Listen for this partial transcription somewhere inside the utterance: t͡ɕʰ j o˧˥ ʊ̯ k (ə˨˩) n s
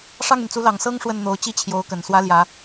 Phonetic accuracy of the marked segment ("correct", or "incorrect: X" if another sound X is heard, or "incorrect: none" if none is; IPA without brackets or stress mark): correct